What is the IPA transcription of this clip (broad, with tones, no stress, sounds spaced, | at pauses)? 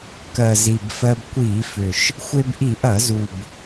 k ɜ˨˩ z i˨˩ b f ɜ˧ b kʷ i˧˩˧ f ʏ˨˩ ʃ | xʷ e˧ b ʔ i˧˩˧ ʔ ɐ˧˩˧ z u˨˩ b